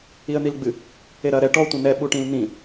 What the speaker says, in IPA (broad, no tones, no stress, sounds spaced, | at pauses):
i ə̯ n̪ i l ɡ͡b ɨ | e ɾ ɐ ɾ ɛ ʈ ɔ tʷ ɐ̃ n ɛ ɓ u ʈ ĩ l n ĩ